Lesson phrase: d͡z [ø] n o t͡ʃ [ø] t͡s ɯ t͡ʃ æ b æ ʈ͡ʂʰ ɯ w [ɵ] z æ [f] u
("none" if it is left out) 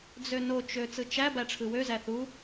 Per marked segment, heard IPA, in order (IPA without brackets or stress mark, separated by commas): ø, ø, ø, θ